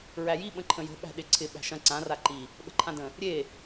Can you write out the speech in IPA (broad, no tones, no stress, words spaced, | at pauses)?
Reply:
ɹæji ɓə̃ǃʰə̃jə̤ ɓæ̤ɗɪǀʰɪ ɓæ̤ʃɐ̃ ǀã raǃi | ɓə̤ǃʰãdə̃ | ɾʲe